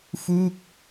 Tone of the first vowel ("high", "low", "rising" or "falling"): falling